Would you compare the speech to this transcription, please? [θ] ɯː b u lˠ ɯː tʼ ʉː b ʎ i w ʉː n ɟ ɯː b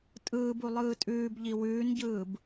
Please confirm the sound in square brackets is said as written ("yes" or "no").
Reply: no